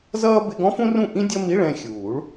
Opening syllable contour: high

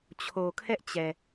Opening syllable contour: low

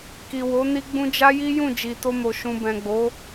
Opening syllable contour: low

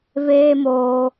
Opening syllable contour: high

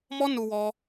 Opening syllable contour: high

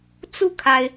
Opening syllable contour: falling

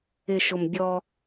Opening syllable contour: low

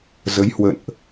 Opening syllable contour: rising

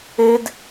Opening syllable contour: high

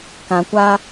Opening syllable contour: low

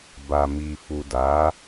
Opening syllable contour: low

